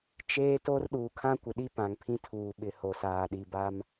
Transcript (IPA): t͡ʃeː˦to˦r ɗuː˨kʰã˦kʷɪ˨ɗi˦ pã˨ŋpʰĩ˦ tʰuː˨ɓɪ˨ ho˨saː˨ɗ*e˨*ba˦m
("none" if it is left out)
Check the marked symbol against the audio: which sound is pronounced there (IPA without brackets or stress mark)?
i˨